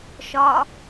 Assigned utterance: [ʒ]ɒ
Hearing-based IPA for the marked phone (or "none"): ʃ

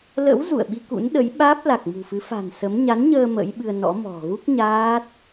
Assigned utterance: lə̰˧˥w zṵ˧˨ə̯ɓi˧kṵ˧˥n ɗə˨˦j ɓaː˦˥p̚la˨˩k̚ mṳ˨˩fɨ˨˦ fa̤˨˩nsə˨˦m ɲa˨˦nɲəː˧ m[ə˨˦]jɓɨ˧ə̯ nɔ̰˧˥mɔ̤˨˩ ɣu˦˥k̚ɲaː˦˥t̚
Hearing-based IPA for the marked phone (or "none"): ə̰˧˥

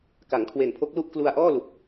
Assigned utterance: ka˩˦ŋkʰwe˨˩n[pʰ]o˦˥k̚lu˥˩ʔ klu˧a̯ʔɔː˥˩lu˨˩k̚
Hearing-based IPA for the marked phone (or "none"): pʰ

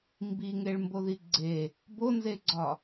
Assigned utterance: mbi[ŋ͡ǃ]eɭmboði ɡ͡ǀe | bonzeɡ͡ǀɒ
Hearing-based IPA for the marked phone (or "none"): ŋ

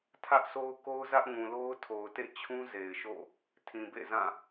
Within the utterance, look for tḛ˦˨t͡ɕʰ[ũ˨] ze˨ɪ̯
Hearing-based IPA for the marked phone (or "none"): ũ˦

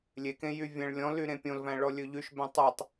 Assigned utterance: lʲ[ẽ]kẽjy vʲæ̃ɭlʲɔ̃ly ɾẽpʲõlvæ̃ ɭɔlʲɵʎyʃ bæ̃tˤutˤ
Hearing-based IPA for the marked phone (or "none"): e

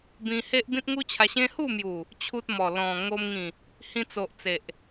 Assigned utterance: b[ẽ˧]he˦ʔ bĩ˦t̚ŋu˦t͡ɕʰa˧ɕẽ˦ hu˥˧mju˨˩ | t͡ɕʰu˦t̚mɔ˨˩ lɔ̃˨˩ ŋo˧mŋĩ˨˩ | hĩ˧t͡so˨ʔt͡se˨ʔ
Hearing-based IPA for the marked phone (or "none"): ĩ˧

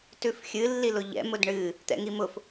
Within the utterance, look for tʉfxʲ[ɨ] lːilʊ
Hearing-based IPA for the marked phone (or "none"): ɨ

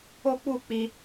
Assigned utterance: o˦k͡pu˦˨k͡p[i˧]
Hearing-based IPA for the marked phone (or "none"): i˧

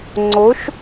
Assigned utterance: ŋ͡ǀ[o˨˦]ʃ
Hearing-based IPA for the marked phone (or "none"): o˨˦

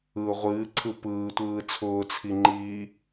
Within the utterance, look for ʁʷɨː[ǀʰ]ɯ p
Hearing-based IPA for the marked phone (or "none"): ǀʰ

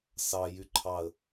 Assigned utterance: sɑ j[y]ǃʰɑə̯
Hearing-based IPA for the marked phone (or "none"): y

